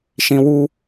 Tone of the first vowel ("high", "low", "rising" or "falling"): high